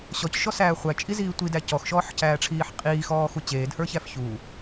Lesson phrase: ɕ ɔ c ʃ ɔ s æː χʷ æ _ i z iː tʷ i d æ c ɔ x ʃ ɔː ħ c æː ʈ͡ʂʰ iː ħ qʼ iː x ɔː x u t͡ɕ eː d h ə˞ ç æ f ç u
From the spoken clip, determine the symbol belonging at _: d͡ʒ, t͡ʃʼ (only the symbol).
t͡ʃʼ